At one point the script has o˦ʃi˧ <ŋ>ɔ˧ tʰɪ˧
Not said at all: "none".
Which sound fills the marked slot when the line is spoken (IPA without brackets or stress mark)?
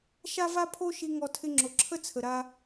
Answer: ŋ